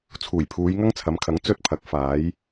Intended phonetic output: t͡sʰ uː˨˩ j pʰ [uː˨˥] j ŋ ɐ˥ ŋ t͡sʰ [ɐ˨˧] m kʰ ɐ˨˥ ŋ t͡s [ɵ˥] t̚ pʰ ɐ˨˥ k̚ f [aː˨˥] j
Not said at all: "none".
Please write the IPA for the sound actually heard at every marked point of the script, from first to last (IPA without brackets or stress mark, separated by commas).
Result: uː˨˧, ɐ˨˧, ɵ˥, aː˨˥